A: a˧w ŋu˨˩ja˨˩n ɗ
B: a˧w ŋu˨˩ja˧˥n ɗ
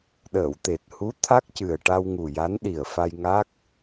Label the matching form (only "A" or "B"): B